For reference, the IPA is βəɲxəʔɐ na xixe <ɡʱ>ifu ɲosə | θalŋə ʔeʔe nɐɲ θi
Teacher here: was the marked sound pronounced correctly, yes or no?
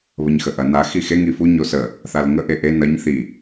no